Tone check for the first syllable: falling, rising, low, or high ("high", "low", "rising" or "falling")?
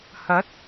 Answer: rising